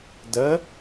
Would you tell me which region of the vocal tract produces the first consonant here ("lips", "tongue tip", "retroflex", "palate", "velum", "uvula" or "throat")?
tongue tip